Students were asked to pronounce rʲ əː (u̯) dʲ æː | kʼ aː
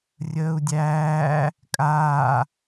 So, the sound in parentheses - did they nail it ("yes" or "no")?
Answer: yes